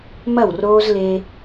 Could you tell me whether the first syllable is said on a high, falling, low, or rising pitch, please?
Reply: falling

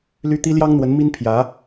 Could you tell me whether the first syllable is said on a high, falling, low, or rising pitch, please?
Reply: high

